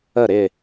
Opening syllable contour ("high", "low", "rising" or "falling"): falling